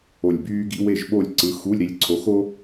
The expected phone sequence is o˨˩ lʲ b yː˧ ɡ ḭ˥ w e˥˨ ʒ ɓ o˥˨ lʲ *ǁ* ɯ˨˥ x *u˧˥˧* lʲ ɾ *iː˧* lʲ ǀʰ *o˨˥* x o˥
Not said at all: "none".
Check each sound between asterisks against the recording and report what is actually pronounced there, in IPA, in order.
ǀ, u˧˥˧, i˧, o˨˥

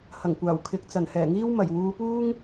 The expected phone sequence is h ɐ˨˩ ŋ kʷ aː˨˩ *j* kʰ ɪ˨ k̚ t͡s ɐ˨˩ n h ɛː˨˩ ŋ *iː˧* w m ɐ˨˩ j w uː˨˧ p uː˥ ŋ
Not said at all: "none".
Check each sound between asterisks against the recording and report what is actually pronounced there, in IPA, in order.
w, iː˥

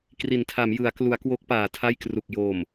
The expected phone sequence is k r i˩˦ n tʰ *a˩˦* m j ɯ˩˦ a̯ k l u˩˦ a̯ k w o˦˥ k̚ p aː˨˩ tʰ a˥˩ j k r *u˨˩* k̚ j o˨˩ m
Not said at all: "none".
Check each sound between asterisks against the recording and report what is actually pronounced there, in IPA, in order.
a˩˦, u˨˩

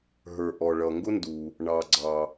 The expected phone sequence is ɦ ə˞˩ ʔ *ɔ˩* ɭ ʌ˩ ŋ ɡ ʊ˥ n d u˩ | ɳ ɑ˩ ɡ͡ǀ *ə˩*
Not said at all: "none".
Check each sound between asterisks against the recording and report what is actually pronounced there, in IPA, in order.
ɔ˩, ɑ˩

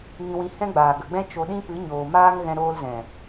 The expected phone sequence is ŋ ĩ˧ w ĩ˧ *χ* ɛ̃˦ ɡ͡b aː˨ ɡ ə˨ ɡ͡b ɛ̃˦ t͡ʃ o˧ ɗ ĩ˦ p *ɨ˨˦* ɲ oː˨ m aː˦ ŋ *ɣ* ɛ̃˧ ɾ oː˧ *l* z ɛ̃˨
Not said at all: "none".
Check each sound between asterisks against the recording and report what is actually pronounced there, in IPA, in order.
h, ɨ˨˦, ɣ, l

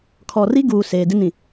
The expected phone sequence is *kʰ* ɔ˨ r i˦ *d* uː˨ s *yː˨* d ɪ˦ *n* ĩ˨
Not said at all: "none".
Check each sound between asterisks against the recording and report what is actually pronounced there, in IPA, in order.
kʰ, ɡ, eː˨, n

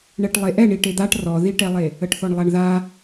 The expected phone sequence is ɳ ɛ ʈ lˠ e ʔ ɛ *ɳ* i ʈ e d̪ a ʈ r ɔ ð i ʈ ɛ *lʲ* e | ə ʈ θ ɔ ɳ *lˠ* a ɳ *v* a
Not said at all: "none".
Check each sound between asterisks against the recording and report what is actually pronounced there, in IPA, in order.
ɳ, lˠ, lˠ, ð

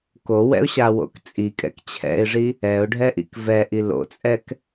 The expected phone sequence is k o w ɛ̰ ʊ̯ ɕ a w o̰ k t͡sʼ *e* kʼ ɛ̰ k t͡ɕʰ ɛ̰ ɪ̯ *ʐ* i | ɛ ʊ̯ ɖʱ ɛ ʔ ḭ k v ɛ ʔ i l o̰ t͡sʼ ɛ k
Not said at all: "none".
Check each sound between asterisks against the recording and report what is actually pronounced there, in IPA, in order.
i, ʐ

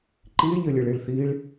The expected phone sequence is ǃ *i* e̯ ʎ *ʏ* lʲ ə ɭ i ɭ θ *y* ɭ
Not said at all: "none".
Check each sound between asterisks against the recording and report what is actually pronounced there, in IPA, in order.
i, ə, i

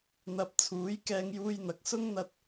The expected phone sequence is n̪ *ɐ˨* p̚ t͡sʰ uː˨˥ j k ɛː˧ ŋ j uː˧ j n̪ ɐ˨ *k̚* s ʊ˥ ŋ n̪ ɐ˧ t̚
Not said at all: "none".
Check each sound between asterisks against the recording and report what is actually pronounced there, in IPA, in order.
ɐ˧, k̚

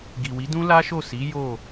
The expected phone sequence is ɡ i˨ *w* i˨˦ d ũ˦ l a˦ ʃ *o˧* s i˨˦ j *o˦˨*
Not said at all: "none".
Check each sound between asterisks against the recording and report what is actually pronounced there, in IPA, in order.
w, o˦˨, o˦˨

